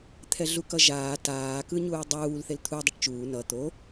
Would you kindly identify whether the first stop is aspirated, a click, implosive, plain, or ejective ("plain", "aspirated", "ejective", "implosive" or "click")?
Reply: aspirated